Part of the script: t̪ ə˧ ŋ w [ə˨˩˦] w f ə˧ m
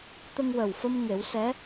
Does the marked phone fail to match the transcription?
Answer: yes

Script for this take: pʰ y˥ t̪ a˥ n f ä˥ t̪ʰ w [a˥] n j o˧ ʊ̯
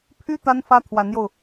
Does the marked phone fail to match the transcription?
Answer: yes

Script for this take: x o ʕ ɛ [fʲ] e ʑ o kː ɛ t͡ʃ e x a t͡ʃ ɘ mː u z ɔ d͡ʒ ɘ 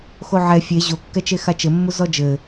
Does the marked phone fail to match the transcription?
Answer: no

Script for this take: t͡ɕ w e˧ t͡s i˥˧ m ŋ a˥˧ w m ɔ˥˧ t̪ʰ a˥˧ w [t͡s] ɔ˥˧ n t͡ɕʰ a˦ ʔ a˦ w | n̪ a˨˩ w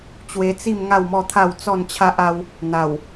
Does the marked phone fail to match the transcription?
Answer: no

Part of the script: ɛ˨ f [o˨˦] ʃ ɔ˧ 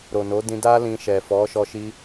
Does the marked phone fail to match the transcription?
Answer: yes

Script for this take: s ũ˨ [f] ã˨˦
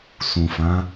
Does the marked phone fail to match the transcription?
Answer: no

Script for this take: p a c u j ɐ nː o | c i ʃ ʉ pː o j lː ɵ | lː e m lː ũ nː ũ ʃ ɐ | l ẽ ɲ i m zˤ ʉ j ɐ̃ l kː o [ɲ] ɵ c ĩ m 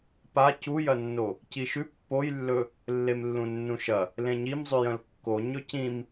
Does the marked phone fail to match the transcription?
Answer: no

